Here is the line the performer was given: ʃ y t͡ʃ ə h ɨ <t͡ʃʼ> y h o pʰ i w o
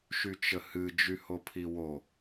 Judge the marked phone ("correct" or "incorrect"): incorrect